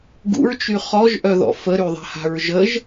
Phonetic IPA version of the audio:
ɡ ṵ ɹ t͡ʃ y χ ɔ ʒ ʔ œ ð ɔ̰ f ə ɾ y ðˤ a̤ h a̤ ɹ ʒ ə ʒ

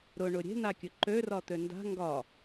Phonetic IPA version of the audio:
ɾ ʊ ɳ ʊ ɾʲ e̤ n a kʲ ʊ ǃ ø r ɒ t̪ ø n d a̤ ŋ ɡ ɒ

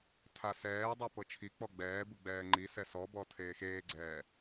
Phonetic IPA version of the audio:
tʰ a s ɛː dˤ u p ɤ t͡ʃʰ i k͡p ɔ ɡ͡b ɛː b ɯ ɡ͡b ɛː ŋ͡ǃ i s ɛ s ɔ b ɔ tʰ eː x eː ɡ͡ǀ ɛː

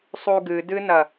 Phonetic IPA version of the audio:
sˤ u ɡ ɨ d ɨ n ɐ

